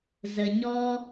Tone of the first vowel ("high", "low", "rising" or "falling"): low